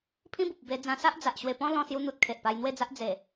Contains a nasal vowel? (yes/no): yes